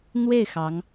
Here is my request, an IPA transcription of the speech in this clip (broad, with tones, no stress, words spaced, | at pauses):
n̪we˥˩ɪ̯ xɑ˧˥ŋ